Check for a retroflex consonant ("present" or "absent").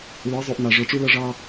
present